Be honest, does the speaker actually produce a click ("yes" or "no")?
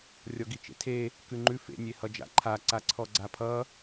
yes